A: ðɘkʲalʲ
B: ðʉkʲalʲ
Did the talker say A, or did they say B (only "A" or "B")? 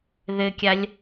A